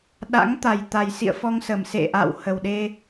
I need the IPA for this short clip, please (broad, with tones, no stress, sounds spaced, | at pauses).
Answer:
ɗ a̰˧˥ ŋ t̪ a˨˩ j t̪ a˨˩ j s ḭ˧˨ ə̯ f ɔ˧ ŋ s ə˨˩ m s ḛ˧˨ ʔ a̰˧˨ w h ə˨˩ w ɗ e˧